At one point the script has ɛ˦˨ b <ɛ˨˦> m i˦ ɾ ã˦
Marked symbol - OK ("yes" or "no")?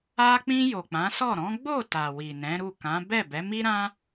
yes